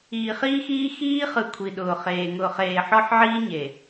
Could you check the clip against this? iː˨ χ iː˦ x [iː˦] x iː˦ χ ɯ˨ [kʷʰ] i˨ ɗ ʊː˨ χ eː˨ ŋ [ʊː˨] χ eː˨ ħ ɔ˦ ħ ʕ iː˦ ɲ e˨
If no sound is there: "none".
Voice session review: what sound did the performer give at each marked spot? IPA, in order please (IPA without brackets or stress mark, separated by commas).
iː˦, kʷʰ, ʊː˨